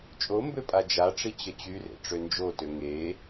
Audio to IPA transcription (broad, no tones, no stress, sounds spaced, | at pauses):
t͡ʃʼ o m b ø pʼ a d͡ʒ a ʈ͡ʂ i t͡ɕ ə t͡ɕ y r ḛ ʈ͡ʂ ø n d͡ʒ o t ø ŋ e